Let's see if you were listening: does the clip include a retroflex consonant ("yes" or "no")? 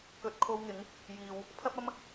no